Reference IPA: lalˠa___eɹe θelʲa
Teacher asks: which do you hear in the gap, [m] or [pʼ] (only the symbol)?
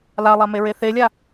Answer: m